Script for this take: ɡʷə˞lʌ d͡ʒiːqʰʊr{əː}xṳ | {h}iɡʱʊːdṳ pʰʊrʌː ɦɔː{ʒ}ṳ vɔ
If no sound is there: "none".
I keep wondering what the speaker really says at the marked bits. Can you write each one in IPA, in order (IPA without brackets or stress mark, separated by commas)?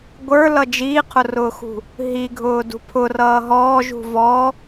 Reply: ʊː, ɦ, ʒ